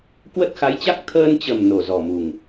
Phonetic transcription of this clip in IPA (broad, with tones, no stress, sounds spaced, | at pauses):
k w ə˦˥ t̚ x a˨˦ j t͡ɕ a˦˥ k̚ t̪ʰ əː˧ n t͡ɕ ə˨˩ m n o˨˩ z ɔ˨˩ m u˨˩ ŋ